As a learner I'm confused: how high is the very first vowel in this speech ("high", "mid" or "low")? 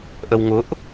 mid